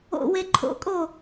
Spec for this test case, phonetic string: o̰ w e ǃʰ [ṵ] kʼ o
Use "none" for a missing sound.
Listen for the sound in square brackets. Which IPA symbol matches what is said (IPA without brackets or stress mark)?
o̰